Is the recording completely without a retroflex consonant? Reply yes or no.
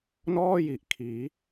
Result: yes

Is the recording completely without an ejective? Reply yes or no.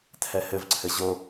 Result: yes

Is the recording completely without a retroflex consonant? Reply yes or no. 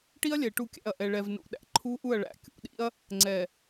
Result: no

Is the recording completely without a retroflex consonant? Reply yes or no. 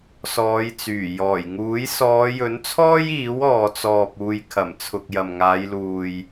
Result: yes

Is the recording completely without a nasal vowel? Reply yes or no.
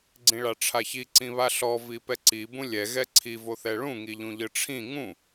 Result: no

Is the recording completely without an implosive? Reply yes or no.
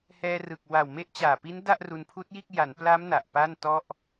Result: yes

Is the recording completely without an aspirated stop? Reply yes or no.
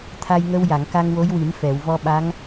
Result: no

